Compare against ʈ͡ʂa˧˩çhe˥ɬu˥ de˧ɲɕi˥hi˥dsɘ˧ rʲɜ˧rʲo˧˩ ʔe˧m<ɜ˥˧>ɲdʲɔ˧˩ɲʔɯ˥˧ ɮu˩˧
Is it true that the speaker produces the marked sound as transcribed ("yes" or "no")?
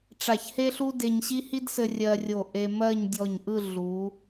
yes